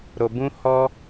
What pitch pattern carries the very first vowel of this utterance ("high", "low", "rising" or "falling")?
low